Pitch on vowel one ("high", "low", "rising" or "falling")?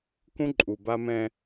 high